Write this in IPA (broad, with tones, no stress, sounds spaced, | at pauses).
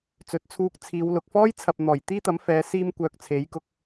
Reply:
t͡s ɵ˨˥ t̚ t͡sʰ uː˧ k̚ t͡sʰ iː˨˧ w l ʊ˨ k̚ f ɔː˥ j t͡sʰ ɐ˨ p̚ n̪ ɔː˨˩ j t̪ iː˥ t̪ ɐ˨˥ m f ɛː˨˧ s iː˥ m kʷ œː˧ k̚ t͡sʰ e˨˥ j k ʊ˧ k̚